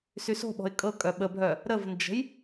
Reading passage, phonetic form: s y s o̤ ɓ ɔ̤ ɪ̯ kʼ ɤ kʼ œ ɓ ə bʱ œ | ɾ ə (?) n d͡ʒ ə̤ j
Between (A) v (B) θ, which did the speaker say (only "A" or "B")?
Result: A